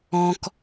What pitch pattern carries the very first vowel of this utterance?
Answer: high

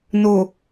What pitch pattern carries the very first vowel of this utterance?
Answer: low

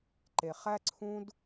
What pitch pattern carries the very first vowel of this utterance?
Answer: low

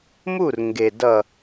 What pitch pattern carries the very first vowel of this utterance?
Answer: falling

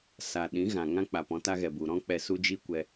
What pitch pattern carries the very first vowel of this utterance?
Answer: low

